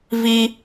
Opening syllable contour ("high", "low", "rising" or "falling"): high